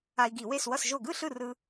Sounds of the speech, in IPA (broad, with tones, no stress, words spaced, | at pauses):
a˧i̯ɡi˧˩˧we˥˩s wʌ˧˩sʒo˧˩ɡɯ˥˩ ɬɯ˥˩rɯ˧